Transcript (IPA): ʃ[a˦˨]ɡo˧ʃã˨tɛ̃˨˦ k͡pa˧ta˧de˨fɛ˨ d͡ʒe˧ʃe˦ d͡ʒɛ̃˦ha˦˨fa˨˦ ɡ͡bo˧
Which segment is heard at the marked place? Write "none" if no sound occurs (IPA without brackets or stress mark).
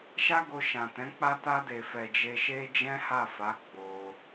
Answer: a˦